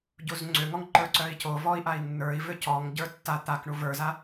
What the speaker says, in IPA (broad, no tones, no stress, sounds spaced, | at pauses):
ɟ u z ŋ͡ǀ ʏ ŋ ɔ ŋ ǃ ə˞ ǀ œ i̯ c o v ɔ i̯ ʔ a i̯ nː ə˞ i̯ v ʏ c ɔ ŋ ɟ ə˞ tː a t̪ a k ɳ u v ə˞ z a